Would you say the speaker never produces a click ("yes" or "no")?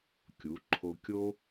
no